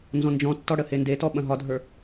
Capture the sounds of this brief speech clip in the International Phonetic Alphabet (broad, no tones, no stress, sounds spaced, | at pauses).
n z ɔ̃ n d͡ʒ ɔ̃ tː ɔ ɽ ə h e n d e t ɔ ɓ ɐ̃ ɦ ɒ dʱ ə˞